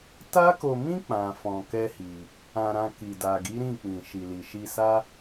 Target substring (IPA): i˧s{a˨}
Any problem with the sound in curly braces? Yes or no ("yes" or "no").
yes